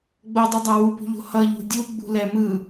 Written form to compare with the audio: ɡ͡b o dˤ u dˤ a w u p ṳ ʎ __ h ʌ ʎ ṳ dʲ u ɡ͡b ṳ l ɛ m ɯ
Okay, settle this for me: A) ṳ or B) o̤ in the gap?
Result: B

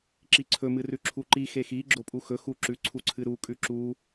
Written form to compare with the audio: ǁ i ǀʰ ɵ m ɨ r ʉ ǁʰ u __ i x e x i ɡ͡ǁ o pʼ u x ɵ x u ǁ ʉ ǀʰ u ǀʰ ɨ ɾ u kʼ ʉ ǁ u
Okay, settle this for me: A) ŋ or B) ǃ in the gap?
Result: B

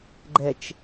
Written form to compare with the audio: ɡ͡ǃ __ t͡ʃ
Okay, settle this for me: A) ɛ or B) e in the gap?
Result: A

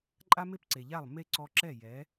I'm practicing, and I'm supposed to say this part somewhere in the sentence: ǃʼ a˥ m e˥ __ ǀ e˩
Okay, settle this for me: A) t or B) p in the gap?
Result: B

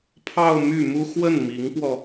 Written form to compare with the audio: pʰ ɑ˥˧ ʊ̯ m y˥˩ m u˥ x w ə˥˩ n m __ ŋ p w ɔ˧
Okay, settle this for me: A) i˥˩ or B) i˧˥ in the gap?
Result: B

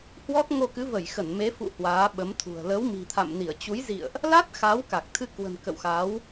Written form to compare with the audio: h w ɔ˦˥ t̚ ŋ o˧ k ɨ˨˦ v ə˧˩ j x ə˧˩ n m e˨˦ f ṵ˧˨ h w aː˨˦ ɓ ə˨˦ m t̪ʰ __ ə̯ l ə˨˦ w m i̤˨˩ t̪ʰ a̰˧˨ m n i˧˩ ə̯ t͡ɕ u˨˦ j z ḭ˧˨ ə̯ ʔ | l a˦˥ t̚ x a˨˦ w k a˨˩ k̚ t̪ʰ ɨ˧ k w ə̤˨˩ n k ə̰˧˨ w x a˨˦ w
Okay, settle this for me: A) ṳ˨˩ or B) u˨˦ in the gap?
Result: A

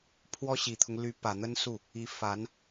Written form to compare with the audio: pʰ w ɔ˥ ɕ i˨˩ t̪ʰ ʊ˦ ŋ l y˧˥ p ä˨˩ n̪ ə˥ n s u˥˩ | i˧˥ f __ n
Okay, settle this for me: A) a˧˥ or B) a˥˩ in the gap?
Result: A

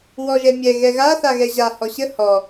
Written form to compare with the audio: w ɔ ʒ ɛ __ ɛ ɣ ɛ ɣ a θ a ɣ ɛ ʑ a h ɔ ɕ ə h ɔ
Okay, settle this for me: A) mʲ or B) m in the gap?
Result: A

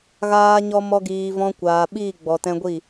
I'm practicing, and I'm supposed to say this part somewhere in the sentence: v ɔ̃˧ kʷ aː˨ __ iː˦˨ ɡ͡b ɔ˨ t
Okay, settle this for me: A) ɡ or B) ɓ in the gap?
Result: B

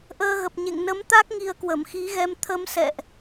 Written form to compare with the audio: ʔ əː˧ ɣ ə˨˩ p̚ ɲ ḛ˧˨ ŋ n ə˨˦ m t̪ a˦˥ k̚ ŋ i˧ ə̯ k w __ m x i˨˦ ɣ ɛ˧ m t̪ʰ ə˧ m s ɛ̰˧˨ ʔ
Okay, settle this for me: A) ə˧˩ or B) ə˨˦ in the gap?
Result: A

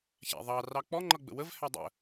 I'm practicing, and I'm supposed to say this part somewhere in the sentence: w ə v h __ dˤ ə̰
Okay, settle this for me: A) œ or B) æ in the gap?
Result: B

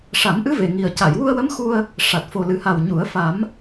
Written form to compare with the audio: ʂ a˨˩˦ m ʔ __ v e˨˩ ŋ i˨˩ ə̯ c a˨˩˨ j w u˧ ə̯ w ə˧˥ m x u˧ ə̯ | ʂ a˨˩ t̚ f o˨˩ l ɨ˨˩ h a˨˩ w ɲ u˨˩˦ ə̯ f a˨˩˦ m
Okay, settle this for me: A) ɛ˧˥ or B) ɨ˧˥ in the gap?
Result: B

